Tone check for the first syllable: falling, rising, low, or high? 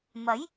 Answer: rising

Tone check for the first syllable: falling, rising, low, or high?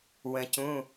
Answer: low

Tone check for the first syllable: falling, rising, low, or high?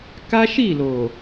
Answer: high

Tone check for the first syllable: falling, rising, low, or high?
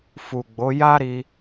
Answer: low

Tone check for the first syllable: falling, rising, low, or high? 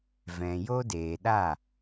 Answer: low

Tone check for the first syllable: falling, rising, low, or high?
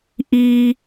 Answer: low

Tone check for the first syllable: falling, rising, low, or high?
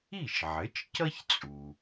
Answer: falling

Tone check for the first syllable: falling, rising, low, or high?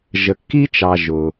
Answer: low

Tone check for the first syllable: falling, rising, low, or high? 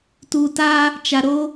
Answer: low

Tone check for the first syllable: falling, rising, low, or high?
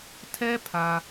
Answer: high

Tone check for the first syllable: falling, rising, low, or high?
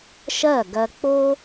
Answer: falling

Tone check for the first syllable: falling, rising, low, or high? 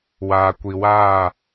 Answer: low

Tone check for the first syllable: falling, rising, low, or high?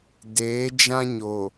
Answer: rising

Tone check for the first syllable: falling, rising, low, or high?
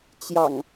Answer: low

